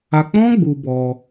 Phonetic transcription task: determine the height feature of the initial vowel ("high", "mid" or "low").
low